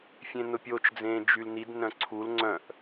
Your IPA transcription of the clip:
fʲ ẽ n ʊ pʲ o t͡ʃ d͡z ẽː d͡ʒ y l n i d n œ̃ ǀʰ u l ŋ͡ǀ œ̃ ʔ

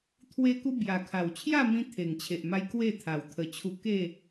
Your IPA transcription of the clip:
t̪ʰ w e˦ k u˦ b j a˨˩ kʰ a˨˩ w t͡ɕʰ j a˥˧ m ĩ˧ t̪ʰ e˨˩ ŋ t͡ɕʰ e˨ ʔ m a˧ j k w e˥˧ t̪ʰ a˨˩ w t̪ʰ ə˨˩ t͡ɕʰ u˧ k e˥˧

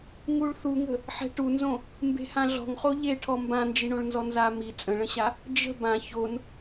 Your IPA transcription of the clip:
ŋ u ɭ θ u ŋ ə̤ | ħ ɛ̤ ʈ u n z õ | m b e̤ h ã ɮ ɔ̤ ŋ χ o ʎ e ʈʰ ɔ m b ã n d͡ʒ i ɳ õ ɭ n z ɔ n z a m i t͡sʼ ə̃ ɭ ə̃ ɕ a | d͡ʒ ə̤ b ã ç o n

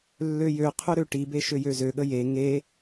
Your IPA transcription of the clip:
lː ø j ø qʰ ø ɾ ø ʈ i b e ʃ ø j ø z ø ɠ ə j e ŋ e

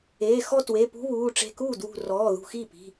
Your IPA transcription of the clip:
e˩˧˩ x ɔ˥˧ t w e˩˧˩ p ṳ˦˥ β uː˩˧˩ ʈ͡ʂ e̤˧˩ k uː˥˩ d w ṳ˧˩ r ɔː˩˧˩ ð ṳ˧˩ x i˥˩ p i̤˩˧˩

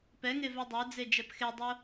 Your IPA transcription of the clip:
p ɛ ŋ e v ɛ dˤ ə˞ d͡z e d͡ʒ ɛ p x e dˤ o

